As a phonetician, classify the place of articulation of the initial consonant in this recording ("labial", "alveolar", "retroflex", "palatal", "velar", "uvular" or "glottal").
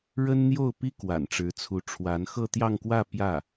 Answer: retroflex